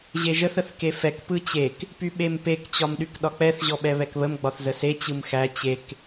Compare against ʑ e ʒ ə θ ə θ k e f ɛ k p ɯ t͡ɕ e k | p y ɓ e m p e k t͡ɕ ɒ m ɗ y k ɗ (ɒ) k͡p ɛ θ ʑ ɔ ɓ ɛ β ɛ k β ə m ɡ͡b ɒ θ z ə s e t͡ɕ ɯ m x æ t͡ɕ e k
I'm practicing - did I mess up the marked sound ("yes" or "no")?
no